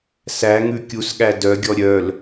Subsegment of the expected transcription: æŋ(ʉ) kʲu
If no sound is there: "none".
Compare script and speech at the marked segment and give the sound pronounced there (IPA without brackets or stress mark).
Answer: ʉ